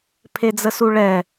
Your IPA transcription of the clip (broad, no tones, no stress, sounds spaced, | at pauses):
pʰ e d͡z ə s u ɭ ɛ